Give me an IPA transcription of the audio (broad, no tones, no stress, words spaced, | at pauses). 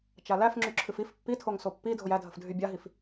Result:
t͡ʃalæf ŋ͡ǁyǁʰɨfif pːitʰoŋ sopːi dʱojædʱəfdʱy bʲaɦif